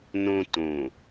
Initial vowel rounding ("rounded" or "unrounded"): rounded